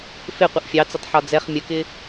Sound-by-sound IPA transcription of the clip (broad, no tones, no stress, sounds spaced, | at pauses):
f ɪ qʷ ɪ ʔ fʲ ɑ t͡s ə tˤ ħ ɒ d͡z ɛ χ mʲ ə k ɪ